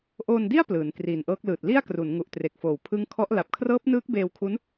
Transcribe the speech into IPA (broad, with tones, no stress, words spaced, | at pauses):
ʔoː˧ndi˥˩a̯ plɯː˩˦nkriː˨˩nʔɤː˦˥k̚lɯː˨˩t̚ li˥˩a̯kru˩˦nŋu˨˩ʔ tre˨˩k̚foː˨˩w pʰɯ˦˥ŋkʰɔ˦˥ʔ la˨˩p̚kʰrɤː˦˥p̚nɯː˦˥k̚ beː˧wkʰu˦˥n